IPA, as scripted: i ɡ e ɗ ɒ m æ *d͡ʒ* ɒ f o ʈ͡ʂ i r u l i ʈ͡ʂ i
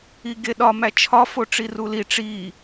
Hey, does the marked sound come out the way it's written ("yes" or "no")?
no